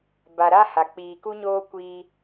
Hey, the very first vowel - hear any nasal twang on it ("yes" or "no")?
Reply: no